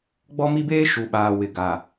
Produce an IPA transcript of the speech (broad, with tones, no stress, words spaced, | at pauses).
ɡ͡bɔ˦mi˦beː˦ ʃu˨ɓaː˨ wɪ˨ɡa˨